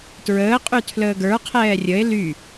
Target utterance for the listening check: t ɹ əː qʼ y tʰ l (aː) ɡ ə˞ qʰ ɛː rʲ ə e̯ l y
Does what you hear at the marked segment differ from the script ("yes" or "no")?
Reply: yes